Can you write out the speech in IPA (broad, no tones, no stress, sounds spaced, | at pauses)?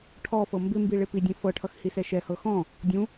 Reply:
ʈʰ ɔ f ɤ m b ɪ m b i ɭ e p i dʲ ɛ̃ f ɤ ʈʰ ʌ x h i s ɛ ʃ ɛ h ɤ x ɔ̃ | dʲ ũ